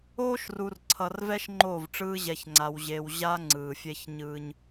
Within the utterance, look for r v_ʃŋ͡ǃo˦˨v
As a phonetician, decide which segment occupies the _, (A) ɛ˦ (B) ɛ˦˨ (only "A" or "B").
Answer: A